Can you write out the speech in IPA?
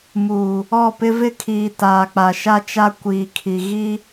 m uː˨ | ɔ˦˨ p ɪ˦ v ɪ˦ kʰ iː˨ t aː˨ k͡p a˨ ʃ a˦ t͡ʃ a˦ kʷ iː˨ kʰ i˨ ɣ i˦

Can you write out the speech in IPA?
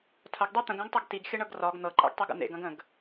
tʰ ɐ ɡ dˤ e t̪ ə̃ ɡ æ̃ ɡ tˤ ɤ ɡ t i ɡ xʲ ə ɳ ɤ ɡ r ɒ ɡ n̪ ɤ ǃʼ æ̰ ɡ tˤ e ɡ ə̰ n̪ ḛ ɡ ɐ̃ ɡ ə̃ ɡ

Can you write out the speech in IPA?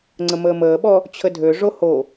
ŋ͡ǀ ə m əː m əː ɓ ɔ | t͡ɕʰ ə dʱ ø ʐ o h o

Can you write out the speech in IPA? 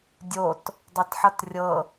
dʲ o t | dˤ ɤ t ħ ʌ t rʲ ɤ

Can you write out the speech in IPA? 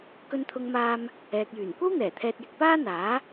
k ɵ˧ n t̪ʰ ʊ˧ ŋ m aː˧ m | ɛː˨ k̚ j yː˨˩ n kʷ ɐ˥ w n̪ ɛː˨˩ t̪ʰ ɛː˧ t̚ j ɪ˧ k̚ p aː˥ n̪ aː˨˥

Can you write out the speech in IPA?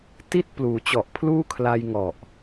t i˥˩ t̚ p l uː˩˦ t͡ɕ ɔ˨˩ ʔ pʰ l uː˥˩ kʰ l a˧ j ŋ ɔ˨˩ ʔ

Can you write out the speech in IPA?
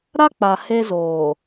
ɾ a˦ k͡p a˨ h e˦ z oː˨

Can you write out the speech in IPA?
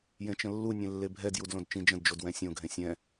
j ẽ t͡ʃ ə̃ lː u nʲ ẽ lː e bʱ ɛ d j u d l õ d t͡ʃ ĩ d͡ʒ ə̃ d d͡ʒ o d w ɛ̃ sʲ õ ɡʱ ẽ sʲ ɛ̃

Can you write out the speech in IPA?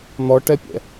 n̪ ɔ ʈ ɛ pʲ ɛ̰

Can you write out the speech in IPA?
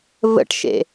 v ə̰ ʈ ʃ ḛ

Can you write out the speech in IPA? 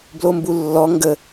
b l o m b u lː ɔ ŋ ɡ ə

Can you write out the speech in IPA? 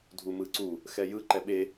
dʱ u m ɯ ǀ u | x ɛ j ɯ ǃ ɛ ɓ e

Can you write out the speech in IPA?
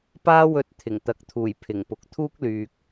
p aː˥ w ɵ˧ t̚ t̪ʰ ɪ˨˩ ŋ t̪ ɐ˨˥ k̚ t̪ʰ uː˨˩ j pʰ ɪ˨˩ ŋ p ʊ˨ k̚ t̪ʰ uː˥ k̚ l yː˨ k̚

